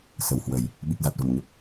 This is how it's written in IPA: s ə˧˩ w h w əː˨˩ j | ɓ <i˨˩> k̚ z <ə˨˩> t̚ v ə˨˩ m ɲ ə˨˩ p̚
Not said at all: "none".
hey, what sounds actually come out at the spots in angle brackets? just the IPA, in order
i˨˩, a˨˩

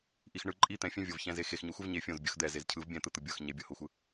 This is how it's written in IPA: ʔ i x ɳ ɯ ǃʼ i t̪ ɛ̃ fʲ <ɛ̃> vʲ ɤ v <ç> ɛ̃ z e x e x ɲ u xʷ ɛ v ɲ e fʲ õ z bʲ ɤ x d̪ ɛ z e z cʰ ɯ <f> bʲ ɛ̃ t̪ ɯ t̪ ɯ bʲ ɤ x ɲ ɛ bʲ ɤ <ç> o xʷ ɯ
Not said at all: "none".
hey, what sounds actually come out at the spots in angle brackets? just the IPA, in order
ɛ̃, ç, v, h

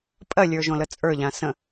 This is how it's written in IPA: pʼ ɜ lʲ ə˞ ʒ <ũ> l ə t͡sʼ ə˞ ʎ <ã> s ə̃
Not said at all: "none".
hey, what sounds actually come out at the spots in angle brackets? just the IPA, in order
õ, ã

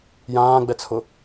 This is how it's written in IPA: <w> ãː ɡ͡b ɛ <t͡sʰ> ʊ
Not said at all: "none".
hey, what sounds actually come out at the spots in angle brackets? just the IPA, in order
j, t͡sʰ

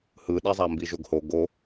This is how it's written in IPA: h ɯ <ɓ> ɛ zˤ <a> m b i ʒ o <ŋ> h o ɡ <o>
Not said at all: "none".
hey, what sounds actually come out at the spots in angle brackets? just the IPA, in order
ɗ, a, ɡ, o

